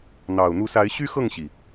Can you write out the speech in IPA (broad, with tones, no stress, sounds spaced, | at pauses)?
n̪ ɑ˨˩ ʊ̯ n̪ u˨˦ s a˨˦ ɪ̯ ɕ y˦ x ɤ˥˨ ŋ ɕ i˩